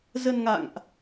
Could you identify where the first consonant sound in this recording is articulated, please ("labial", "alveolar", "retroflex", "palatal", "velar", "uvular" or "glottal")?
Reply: alveolar